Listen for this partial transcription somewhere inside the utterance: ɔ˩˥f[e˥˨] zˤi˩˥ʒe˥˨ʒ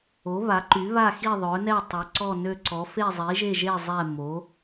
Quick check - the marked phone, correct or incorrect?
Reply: correct